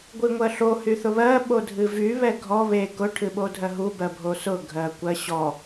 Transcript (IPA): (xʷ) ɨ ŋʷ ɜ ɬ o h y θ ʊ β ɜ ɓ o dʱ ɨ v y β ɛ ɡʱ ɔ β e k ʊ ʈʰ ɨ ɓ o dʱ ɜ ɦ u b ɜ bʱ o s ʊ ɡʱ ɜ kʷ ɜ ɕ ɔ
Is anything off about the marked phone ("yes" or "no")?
yes